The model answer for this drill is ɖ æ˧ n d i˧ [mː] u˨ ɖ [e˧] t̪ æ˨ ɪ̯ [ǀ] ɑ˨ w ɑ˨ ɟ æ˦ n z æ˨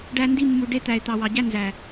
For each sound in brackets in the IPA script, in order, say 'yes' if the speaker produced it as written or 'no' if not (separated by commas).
yes, yes, no